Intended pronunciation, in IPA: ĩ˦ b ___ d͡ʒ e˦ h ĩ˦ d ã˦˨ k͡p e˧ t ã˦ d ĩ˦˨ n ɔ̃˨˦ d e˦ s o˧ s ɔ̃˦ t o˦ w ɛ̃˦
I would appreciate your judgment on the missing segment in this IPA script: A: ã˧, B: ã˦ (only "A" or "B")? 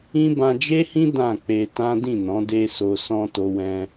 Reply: A